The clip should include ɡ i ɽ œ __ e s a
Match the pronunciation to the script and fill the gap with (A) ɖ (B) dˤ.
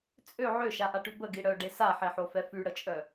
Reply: A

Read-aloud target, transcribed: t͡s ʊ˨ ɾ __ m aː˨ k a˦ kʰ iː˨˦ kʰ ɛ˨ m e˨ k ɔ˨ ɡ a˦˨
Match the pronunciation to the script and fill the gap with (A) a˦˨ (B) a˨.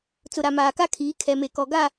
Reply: B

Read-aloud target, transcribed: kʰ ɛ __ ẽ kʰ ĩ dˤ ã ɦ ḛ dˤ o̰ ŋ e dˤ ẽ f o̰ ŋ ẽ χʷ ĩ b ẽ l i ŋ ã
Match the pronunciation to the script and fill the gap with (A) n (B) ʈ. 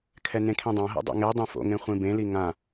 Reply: A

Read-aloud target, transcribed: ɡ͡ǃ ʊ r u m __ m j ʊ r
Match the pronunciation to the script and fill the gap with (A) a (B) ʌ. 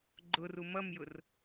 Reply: B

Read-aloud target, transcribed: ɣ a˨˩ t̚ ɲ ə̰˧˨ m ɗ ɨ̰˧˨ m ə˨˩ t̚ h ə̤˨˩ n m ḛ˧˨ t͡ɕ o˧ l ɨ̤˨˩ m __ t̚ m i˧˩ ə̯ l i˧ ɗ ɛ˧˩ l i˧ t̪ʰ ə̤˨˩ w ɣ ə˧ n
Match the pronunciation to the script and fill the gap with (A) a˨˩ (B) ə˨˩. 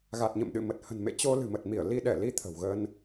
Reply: B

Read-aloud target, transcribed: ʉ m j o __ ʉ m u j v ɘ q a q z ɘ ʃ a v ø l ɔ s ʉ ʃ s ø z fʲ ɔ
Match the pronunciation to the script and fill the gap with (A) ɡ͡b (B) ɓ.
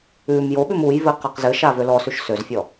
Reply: B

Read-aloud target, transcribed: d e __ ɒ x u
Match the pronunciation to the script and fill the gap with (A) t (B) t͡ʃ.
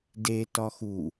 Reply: A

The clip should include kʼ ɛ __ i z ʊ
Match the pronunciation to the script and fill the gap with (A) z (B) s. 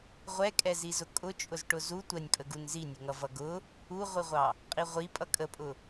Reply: A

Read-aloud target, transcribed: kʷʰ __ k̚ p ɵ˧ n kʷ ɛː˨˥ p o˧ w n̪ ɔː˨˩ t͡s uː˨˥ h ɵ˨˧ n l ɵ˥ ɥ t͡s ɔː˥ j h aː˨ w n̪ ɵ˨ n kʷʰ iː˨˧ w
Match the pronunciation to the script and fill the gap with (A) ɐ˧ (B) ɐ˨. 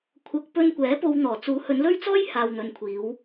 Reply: B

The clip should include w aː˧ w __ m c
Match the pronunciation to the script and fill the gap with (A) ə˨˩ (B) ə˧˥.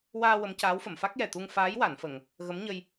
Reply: B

